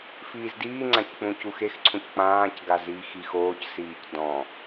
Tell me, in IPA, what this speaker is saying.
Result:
f iː z d iː ŋ͡ǀ ã c k͡p ũ c u x e x ǀʰ ũ c k͡p ãː c ɡ a z iː x i x oː c s iː c d ɔ̃

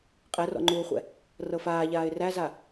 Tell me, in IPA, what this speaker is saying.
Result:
qʼ ɛ r ɔ̰ ŋ͡ǃ uː χʷ ɛ̰ | r ɤ f aː ʎ aː ɪ̯ r æ z a

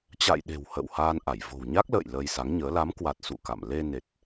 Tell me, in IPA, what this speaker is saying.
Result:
t͡ɕ a̰˧˨ j ɗ e̤˨˩ w h ə̰ː˧˨ w h aː˧ n ʔ a˧˩ j v o̤˨˩ w ɲ a˦˥ k̚ l ə̰ː˧˨ j l əː˧ j s a˨˦ ŋ ɲ əː˨˦ l a˨˦ m k w a˨˩ t̚ s ṵ˧˨ k a̰˧˨ m l e˧ n e˨˩ t̚

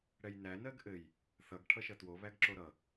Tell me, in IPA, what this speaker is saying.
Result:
ɽ ɛ j n æ n ɜ ɡ ʔ ɘ j | θ ʌ ɡ ʈʰ ʌ ʃ ʌ t w o β æ ɡ ǁ o ɾ ʌ

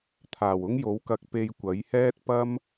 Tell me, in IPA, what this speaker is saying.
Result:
t̪ʰ aː˨˩ w ʊ˥ ŋ j o˨˥ w k ɐ˧ k̚ p e˧ j kʷ ɐ˨˥ j h ɛː˥ t̚ p ɐ˥ m

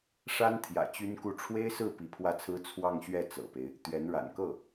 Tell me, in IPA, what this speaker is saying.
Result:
ʂ a˥ n t̪ʰ j ä̰˨˩ t͡ɕ y˥ n k u˥˩ ʈ͡ʂʰ w e˥ ɪ̯ s ɹ̩˥˩ p i˧˥ pʰ w ä˥˩ t͡sʰ ɹ̩˥ t͡sʰ w ɑ˥˧ ŋ ɕ ɥ ɛ˥˩ t͡s ɤ̰˨˩ p e˦ ɪ̯ | t̪ ɥ ɛ˧˥ n ɻ a̰˨˩ n k ɤ˥˩

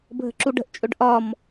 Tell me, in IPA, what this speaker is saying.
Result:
bʱ ə̤ ǁ u ɖ ə̤ ʔ t͡ʃʼ ɵ ɖ ʔ ɒ m

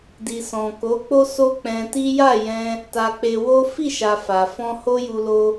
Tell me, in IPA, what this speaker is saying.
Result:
d i˨ s ɔ̃˨ k o˨˦ k͡p o˦ s o˦ k͡p ɛ̃˧ t i˦ j a˦˨ j ɛ̃˧ | t a˧ k͡p e˧ w o˦ f i˦˨ ʃ a˨ f a˨ f ɔ̃˧ h o˦ j u˧ l o˧

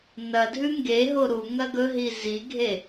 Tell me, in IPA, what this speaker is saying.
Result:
n ɐ dʱ ʉ ŋ ɡ e ɦ o ɾ u ŋ ɐ ɡ ɵ ɦ i z i ɡʱ e

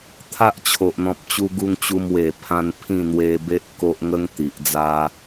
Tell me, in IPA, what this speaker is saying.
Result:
t̪ʰ a˦ ʔ t͡ɕʰ o˨ ʔ n̪ ɔ̃˨ p̚ t͡ɕ u˧ ɡ u˧ ŋ t͡ɕ u˧ m w e˨˩ pʰ ã˧ n pʰ ĩ˥˧ n̪ w e˧ b e˦ ʔ k o˦ ʔ ŋ ə˦ ŋ t̪ i˨ ʔ d͡z a˦

